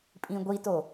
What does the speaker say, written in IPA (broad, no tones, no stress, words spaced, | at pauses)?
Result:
pʼĩɡʷito